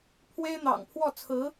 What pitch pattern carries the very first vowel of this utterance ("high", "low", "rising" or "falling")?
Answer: high